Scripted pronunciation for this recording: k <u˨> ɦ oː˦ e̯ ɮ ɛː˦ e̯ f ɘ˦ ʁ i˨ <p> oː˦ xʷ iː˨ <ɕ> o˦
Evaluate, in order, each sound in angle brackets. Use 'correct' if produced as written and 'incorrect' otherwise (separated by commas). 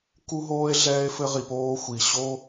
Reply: incorrect, correct, correct